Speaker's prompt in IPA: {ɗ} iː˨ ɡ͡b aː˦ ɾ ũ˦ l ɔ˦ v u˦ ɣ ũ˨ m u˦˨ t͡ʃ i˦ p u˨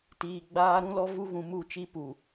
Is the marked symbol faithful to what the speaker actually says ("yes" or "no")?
no